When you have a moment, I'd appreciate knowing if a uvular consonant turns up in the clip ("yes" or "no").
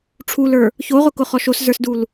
yes